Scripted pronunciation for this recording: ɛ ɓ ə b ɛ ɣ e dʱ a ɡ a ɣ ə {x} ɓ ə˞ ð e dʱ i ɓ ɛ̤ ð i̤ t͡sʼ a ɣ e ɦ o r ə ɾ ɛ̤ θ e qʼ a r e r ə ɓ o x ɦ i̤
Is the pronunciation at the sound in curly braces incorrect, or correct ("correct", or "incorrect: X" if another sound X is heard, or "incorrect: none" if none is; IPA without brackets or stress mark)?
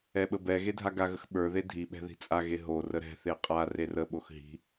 correct